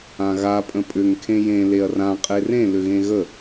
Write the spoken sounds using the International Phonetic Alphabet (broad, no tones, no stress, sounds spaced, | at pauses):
ã ɣ a pʼ ə̃ pʼ ʏ ŋ kʰ ẽ j ẽ l e ɐ̯ r ã qʼ e r ẽ l ʏ ɣ ẽ ɣ ə